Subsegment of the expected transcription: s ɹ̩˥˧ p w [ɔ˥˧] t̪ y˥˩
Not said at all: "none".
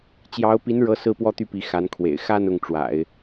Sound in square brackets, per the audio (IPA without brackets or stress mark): ɔ˥˧